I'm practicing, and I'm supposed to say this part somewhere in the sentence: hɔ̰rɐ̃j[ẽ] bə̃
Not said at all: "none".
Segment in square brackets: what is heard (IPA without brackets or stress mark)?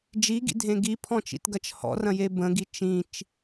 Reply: e